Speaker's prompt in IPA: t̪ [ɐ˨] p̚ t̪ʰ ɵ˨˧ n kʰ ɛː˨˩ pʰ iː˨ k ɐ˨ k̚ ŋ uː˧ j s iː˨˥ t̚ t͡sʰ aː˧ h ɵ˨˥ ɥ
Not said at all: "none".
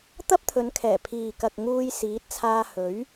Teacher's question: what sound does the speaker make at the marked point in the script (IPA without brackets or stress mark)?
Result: ɐ˥